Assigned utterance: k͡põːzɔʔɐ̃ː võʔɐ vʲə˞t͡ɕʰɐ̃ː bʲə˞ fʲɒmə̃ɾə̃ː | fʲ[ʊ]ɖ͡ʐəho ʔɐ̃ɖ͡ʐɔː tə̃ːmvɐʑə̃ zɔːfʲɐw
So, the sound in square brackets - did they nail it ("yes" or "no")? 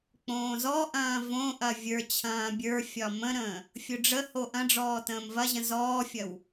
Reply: yes